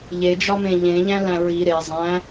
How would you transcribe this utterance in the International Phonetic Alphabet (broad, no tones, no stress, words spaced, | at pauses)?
ʎed͡ʒɒmẽ ʎẽʎæ̃læ̃ ɹi ɾe zˤæ̃